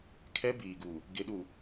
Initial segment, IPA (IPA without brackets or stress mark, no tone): kʰ